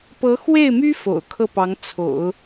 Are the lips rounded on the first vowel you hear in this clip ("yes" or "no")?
no